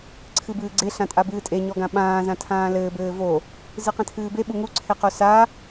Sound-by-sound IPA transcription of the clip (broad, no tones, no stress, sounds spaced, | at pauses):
ǀʰ ɨ b ɨː ɡ͡ǀ e ɬ ã tʼ a b ɨː tʼ e ɲ ɔ ɡ ã ɓ ãː z ã tʰ ãː l ɘː b ɘː v o | z ɨ q ɛ̃ tʰ ɨː b e ɓ u ŋ u ǀʰ e q o s a